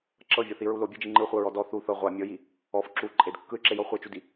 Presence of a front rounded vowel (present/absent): present